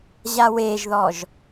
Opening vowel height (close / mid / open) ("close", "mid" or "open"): open